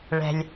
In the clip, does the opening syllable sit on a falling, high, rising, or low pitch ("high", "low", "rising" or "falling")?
low